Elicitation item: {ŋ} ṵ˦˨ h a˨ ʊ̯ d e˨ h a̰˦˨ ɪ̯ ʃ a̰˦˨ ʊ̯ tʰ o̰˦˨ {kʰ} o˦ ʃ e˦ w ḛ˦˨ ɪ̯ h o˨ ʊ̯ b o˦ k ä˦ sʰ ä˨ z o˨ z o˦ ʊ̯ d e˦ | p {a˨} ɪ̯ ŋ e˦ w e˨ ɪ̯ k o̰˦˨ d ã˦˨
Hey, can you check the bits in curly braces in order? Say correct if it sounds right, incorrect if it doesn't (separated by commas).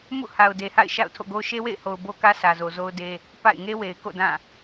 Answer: incorrect, incorrect, incorrect